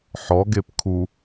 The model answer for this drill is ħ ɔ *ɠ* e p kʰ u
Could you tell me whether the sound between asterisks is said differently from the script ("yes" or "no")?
yes